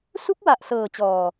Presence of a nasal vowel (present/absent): absent